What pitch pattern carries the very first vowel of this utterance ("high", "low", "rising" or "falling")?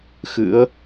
rising